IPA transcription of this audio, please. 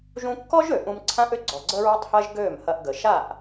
ʒ ũ˧ kː ɔ˦ ʒ ø˨ ʔ ũ˧ m ǀʰ ã˦ ʔ ʏ˦ ɡ͡ǀ ɔ˨ ɡ͡ǀ ə˦ ɹ ø˦ tˤ h ɐ˦ ʒ ɡ ø˦˨ m h ɐ˧ ʔ ɡ ə˨ ʃ a˦˨ ʔ

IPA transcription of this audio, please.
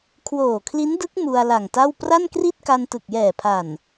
kʰ w oː˨˩ kʰ l i˦˥ n d ɯ˦˥ k̚ m u˧ a̯ l a˨˩ ŋ t a˥˩ w p r a˥˩ n k r i˥˩ t̚ k a˧ n t ɯ˨˩ k̚ j ɛː˨˩ pʰ a˨˩ n

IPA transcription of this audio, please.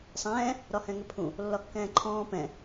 sˤ ɛ̃ː | ɾ ɒ h ɛ̃ ŋ ʏ pʰ ũ | lː ɒ kː ɛ̃ː ǃʰ ɔ̃ː p ɛ̃

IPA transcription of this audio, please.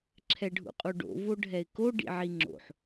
ǁʰ ɛ ɖʱ ṵ qʼ u ɖ o̰ v o ɖʱ ɛ ɪ̯ k o ɖ ḭ ʕ i ŋ͡ǁ o̰ ħ

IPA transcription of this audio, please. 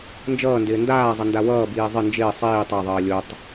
n d͡ʒ ʌː n d ɪː n d aː zˤ ʌ n d a w ʌː b iː zˤ ɪ n d͡ʒ ɪː sˤ iː tˤ a ðˤ ʌː lʲ o tˤ

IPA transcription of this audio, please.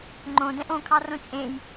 ŋ͡ǃ õ d ɛ̃ ʔ õ kʰ ɑ r õ t͡ʃʼ ẽ j

